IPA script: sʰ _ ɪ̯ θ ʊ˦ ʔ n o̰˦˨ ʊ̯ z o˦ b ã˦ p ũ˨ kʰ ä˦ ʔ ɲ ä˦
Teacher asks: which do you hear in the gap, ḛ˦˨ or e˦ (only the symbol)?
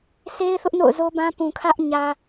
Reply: e˦